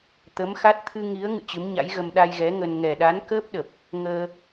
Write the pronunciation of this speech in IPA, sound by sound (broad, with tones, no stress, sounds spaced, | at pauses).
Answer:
t̪ ə˨˦ m x a˦˥ t̚ t̪ʰ ɨ˧ ŋ i˨˦ ə̯ ŋ ɨ̰˧˨ t͡ɕ ɨ˨˦ m ɲ a̰˧˥ j ɣ ə˧ m ɗ a˧ j ɣ ɛ˨˦ ŋ ə˧ n ŋ ɛ˨˩ ɗ a˨˦ n k əː˦˥ p̚ ɗ ə˨˩ p̚ | ŋ əː˧